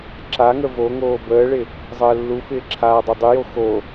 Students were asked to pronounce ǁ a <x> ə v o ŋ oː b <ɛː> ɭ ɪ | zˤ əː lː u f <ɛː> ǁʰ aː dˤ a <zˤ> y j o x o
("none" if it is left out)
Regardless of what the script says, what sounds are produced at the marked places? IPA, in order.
ŋ, əː, ɪː, dˤ

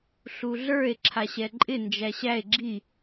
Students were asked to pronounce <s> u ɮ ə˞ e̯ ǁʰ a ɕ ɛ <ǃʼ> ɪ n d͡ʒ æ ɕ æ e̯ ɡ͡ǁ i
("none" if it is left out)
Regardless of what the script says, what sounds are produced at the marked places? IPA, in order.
ɬ, ǃʼ

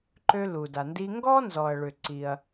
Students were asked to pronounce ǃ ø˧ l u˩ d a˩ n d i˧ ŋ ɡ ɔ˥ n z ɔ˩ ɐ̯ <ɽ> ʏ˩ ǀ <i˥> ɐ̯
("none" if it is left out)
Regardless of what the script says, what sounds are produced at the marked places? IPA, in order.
ɭ, i˩

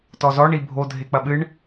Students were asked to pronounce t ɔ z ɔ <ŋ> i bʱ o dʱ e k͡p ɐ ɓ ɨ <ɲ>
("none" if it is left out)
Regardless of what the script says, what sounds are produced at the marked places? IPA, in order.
ɳ, ɳ

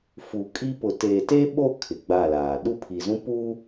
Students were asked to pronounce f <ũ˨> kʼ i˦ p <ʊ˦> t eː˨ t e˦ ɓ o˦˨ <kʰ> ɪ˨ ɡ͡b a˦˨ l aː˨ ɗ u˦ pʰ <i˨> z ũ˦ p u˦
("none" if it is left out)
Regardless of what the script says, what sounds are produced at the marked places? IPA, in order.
u˨, ʊ˨, kʰ, i˨

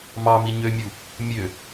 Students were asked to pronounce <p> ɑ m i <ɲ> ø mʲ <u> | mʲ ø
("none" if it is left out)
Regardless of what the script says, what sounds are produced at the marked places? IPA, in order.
m, ɲ, u

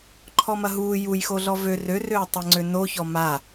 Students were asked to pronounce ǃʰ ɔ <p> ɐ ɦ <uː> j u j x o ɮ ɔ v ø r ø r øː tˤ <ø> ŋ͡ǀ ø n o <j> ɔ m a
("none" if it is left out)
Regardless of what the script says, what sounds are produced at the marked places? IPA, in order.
m, uː, ɛ, ç

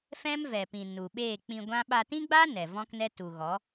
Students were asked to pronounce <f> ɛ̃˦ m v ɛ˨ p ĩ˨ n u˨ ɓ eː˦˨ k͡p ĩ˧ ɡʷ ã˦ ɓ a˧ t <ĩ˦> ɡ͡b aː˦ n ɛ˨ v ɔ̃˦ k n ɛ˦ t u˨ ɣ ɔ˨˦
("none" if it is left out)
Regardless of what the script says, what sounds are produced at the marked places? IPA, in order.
f, ĩ˦

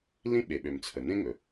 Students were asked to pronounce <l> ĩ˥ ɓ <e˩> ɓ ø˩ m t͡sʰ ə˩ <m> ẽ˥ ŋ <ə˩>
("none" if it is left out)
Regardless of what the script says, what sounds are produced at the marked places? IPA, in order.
l, e˩, n, ɵ˩

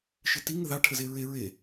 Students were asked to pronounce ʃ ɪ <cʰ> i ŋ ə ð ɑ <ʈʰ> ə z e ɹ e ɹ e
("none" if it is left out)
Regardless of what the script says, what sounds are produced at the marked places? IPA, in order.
t, ʈʰ

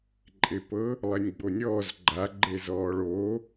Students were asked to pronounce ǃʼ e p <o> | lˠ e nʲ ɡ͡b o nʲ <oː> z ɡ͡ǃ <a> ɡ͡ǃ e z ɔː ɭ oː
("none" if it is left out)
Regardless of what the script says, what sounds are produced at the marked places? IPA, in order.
ɤ, ɔː, a

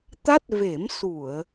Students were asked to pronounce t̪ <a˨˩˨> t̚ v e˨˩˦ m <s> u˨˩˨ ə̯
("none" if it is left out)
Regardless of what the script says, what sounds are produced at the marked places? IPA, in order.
a˦˥, s

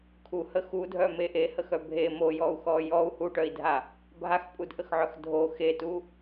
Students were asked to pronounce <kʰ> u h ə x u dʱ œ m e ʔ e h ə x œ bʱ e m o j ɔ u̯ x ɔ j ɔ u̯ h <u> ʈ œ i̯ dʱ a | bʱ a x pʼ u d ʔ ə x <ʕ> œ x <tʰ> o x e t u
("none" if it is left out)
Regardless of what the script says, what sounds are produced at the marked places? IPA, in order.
kʰ, u, ʕ, dʱ

